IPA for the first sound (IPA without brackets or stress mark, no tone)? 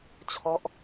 t͡ɕʰ